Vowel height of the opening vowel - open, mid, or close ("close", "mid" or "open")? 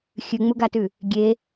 close